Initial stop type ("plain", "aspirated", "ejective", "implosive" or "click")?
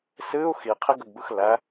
aspirated